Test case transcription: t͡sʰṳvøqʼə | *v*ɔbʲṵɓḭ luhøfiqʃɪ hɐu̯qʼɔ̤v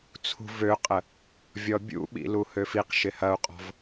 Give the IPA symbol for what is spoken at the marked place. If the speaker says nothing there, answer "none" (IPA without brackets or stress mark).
vʲ